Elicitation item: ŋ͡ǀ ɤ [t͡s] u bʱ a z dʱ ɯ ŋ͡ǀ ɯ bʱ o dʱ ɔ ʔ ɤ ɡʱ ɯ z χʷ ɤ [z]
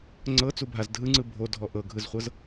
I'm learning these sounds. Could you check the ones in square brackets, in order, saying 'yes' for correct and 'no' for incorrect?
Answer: yes, yes

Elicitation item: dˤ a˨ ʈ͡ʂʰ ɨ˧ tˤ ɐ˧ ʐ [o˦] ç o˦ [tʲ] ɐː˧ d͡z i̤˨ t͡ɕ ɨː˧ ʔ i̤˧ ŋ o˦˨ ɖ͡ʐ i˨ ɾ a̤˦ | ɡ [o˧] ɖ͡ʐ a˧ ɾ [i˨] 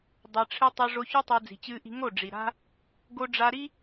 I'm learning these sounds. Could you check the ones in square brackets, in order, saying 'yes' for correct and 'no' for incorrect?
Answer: no, no, yes, no

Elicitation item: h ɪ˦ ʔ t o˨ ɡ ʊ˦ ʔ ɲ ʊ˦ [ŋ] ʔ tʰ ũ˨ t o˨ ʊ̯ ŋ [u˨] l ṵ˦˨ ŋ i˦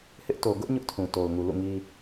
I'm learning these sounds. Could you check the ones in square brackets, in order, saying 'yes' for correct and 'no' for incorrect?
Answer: no, yes

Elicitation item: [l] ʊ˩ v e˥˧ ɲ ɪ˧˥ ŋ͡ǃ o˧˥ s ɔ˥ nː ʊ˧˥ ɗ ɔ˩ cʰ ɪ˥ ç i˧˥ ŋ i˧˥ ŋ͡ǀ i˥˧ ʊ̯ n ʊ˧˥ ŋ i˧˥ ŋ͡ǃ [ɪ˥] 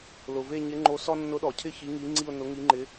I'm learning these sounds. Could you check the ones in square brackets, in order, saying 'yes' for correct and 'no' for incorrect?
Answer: yes, no

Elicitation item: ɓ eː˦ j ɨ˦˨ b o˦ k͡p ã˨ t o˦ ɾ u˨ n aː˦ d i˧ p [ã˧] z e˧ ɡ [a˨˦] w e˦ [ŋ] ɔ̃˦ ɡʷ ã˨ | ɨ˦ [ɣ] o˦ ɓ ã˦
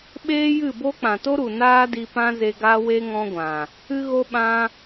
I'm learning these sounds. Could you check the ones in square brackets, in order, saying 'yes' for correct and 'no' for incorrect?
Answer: no, no, yes, yes

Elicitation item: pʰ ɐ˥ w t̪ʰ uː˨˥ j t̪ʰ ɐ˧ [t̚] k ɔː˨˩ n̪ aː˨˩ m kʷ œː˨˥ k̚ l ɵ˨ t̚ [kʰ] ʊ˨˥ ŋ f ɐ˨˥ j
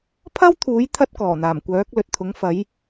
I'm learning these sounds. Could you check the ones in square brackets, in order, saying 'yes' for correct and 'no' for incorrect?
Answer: yes, no

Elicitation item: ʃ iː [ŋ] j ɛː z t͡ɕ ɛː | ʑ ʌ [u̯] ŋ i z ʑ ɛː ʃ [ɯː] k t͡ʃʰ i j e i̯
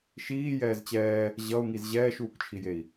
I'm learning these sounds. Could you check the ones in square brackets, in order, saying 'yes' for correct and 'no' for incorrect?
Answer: no, yes, no

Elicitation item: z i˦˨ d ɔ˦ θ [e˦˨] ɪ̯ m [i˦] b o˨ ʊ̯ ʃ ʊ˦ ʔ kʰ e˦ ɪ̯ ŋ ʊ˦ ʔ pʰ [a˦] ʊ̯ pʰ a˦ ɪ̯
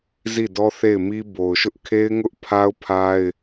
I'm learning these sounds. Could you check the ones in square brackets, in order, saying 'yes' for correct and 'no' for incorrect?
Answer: yes, yes, yes

